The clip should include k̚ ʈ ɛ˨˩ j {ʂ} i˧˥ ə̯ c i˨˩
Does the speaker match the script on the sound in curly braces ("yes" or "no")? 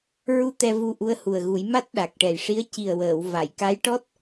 yes